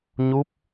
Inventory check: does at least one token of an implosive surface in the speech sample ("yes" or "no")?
no